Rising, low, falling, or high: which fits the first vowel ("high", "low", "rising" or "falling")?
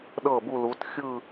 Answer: falling